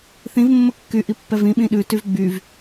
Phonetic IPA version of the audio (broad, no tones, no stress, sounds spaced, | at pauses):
θ ĩ v mː ə kː y ʔ i pː ɛ v ĩ ɓ ĩ ɗ ʉ t y v ɡ͡b y v